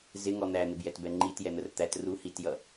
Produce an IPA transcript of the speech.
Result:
z ɪ ŋ ɔ n̪ æ n̪ ɪ b j ɛ t b ɛ ŋ͡ǃ i t j ɛ n̪ ə r t̪ æ t r u h i t j ʌ

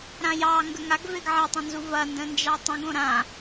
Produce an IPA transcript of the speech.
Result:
ɾ ã j ɑ ŋ ɡ ə ŋ a ɡ v e ɡ ʕ ɐ tˤ õ n z u v ɐ n d ə̃ n d͡ʒ ɑ tˤ ə̃ ɡ õ ɾ ã

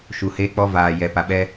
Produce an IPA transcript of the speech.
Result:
ʃ u˨ h eː˦ k͡p ɔ˦ v aː˨ j ɛ˨ p a˨ ɓ ɛ˦

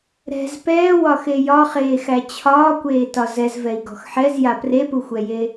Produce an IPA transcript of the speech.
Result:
ɾ ɛ̤ z p ɛː w ɒ x e j ɒ χ eː x æ t͡ɕʰ ɒː kʷ eː t ɒ z ɛ z v ɛ i̯ ɡ ɔ̤ x ħ ɛ z j a p r e p u xʷ ɛ j e

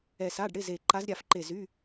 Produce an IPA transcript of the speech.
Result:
ɛ˧˩ s a˧˥˧ ɖ ɽ ɪ˧˥˧ z e˧˩ ǃ a˧˥ z ɾʲ a˧˩ f ǃ e˧˩ z y˧˥˧

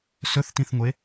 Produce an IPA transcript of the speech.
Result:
s ɵ θ t ĩ θ ŋʷ e

